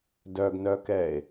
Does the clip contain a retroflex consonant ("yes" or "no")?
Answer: no